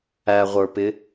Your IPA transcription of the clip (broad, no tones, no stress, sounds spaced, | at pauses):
æ ʁʷ ə˞ p ɪ